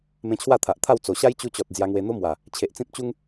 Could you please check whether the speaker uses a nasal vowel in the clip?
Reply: yes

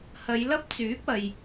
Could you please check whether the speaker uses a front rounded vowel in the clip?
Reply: yes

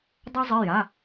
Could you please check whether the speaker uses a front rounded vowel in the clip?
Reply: no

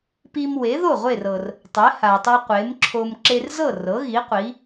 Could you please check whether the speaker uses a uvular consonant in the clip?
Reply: yes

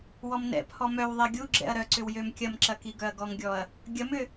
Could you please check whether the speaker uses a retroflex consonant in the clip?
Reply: no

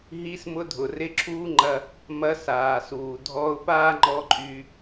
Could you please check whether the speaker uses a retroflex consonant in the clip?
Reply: no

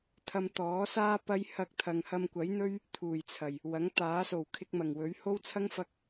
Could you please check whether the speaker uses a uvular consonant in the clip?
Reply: no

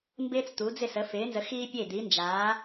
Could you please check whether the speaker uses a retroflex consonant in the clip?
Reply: no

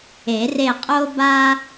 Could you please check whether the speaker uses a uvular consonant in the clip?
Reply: yes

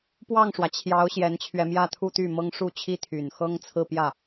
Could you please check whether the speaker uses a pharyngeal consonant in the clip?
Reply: no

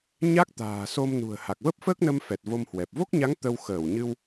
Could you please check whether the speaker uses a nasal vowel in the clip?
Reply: no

